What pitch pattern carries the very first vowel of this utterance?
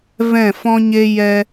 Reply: falling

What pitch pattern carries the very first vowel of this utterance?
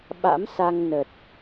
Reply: rising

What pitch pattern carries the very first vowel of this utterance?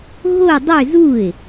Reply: falling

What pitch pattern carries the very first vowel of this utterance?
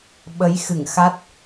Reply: rising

